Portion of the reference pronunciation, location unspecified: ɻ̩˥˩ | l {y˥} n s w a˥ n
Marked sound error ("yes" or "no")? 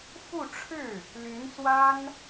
yes